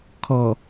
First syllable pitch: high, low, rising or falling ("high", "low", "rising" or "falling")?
low